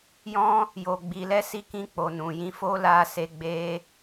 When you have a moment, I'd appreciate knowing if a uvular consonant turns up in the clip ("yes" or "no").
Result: no